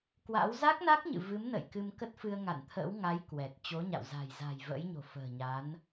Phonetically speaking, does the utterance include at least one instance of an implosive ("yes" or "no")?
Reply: no